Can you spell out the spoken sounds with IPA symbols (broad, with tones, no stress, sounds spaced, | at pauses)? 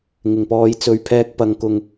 ŋ ɪ˨˩ ŋ p ɔː˨˧ j t͡s ɵ˨˧ ɥ pʰ ɛː˧ k̚ p ɐ˨ ŋ k ʊ˨ ŋ